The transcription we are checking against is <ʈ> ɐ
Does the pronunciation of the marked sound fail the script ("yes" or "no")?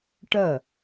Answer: no